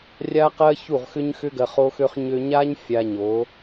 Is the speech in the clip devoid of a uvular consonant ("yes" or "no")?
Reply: no